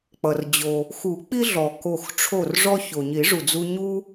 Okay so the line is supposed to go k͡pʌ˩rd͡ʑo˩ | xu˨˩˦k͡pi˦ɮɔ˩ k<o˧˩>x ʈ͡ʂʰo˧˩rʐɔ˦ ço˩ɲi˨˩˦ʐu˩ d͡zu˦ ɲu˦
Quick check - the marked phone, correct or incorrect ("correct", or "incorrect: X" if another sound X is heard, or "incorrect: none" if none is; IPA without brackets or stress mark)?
correct